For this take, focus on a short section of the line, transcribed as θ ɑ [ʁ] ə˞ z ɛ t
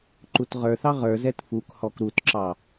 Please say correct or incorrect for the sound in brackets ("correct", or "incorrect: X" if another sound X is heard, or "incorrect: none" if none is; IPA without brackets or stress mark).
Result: correct